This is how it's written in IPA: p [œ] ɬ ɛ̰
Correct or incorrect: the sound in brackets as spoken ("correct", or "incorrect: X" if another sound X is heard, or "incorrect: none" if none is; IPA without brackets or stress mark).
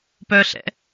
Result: correct